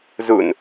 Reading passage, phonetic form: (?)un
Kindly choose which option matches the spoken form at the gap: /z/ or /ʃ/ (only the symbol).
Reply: z